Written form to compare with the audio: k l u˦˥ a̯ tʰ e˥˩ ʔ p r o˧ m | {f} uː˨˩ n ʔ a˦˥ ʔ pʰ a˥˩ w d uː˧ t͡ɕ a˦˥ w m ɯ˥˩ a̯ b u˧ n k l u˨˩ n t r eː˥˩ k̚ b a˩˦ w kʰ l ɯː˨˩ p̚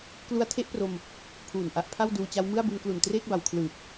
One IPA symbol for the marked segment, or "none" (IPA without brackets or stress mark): pʰ